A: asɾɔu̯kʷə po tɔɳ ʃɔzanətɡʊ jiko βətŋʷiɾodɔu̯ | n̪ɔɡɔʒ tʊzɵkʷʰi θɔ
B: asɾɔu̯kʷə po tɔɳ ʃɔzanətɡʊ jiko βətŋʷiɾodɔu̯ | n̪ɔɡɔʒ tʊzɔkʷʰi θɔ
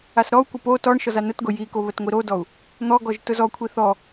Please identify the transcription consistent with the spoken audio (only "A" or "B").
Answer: B